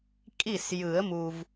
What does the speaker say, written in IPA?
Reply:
kʼi˥˩sjɯ˨˩˦ə̯mu˨v

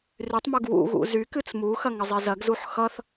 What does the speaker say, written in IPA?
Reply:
rytˤmuɡ wṵɣṵ zykɨt͡s muxɐ ŋəzˤezɐɡzuħ xʌθ

